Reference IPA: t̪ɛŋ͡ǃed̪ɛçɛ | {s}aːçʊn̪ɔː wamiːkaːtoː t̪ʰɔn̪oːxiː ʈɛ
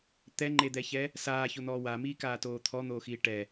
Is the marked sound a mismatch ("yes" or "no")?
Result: no